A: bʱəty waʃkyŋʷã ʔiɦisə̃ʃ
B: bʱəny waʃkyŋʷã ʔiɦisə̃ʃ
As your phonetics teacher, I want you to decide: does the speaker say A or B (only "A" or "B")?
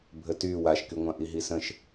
A